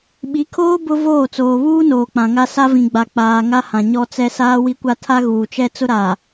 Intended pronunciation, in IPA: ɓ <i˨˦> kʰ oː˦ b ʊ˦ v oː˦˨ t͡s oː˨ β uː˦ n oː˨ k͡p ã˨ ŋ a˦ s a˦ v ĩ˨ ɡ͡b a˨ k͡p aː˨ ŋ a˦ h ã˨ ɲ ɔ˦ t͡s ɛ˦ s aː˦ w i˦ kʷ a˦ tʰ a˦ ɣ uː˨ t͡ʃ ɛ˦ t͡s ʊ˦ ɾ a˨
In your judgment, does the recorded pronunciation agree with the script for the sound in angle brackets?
yes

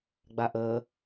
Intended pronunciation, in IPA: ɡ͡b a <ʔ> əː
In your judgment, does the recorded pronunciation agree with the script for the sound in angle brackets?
yes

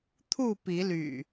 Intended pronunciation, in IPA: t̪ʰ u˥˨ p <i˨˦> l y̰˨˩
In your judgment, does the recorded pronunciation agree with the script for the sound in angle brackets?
yes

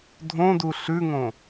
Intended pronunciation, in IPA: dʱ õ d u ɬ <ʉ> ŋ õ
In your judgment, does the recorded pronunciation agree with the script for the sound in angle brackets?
yes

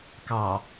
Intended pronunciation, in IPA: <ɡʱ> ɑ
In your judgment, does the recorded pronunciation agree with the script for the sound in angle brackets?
no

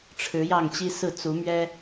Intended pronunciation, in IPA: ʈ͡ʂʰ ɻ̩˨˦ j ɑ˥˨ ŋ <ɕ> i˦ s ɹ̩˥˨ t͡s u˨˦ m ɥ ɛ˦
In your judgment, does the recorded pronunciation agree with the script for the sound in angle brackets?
no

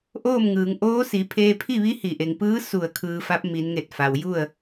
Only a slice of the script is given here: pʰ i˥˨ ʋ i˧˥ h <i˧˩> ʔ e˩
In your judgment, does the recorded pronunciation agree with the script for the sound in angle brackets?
yes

